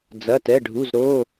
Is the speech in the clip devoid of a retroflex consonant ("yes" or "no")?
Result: no